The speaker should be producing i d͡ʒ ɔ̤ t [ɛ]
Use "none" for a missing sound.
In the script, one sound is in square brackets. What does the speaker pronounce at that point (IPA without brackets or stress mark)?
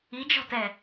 ɛ